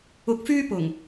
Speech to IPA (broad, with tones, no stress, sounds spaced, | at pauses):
ʊ˨ k̚ f yː˧ p ʊ˨˩ ŋ